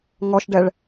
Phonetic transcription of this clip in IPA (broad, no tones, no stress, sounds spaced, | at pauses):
ŋ ɔ ʃ ɖ ɛ ɭ